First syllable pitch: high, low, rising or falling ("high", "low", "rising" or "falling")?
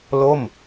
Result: falling